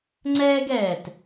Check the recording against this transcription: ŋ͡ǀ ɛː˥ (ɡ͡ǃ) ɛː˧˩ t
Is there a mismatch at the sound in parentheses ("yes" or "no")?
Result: yes